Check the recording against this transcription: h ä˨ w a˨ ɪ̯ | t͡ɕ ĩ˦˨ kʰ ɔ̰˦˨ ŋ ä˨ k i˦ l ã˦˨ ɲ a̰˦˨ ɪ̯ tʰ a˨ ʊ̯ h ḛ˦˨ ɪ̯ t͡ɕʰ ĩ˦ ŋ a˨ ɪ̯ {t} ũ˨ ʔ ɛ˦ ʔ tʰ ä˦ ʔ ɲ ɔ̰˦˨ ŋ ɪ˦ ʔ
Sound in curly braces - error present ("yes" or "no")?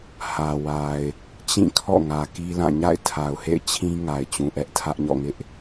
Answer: yes